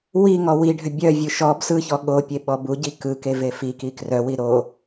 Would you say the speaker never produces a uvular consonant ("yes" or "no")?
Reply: yes